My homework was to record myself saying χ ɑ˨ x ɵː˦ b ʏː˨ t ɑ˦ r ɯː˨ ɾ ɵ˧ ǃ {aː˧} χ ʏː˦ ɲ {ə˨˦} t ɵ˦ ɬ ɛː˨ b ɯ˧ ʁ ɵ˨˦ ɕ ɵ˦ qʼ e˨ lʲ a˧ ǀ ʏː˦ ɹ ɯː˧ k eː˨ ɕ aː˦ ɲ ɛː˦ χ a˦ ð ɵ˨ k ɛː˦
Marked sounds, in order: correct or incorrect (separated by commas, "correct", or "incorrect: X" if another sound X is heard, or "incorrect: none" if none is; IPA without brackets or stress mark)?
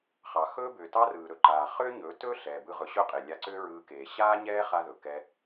incorrect: aː˨, incorrect: ɵ˨˦